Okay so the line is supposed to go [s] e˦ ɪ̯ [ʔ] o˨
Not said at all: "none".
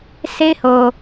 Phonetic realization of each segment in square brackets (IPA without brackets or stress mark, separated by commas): s, h